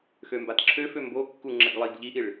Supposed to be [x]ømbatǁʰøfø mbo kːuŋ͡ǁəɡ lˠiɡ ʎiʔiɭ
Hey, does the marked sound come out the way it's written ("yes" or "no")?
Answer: yes